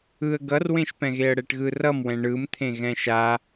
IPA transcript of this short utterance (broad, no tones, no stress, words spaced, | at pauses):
ɯə̯ ɡʌrwẽʃpɛ̃ɣeə̯ ɽɛʈɣɯrʌmwɛ̃ ɳɯmt̪ʰẽ ɣɛ̃ʃa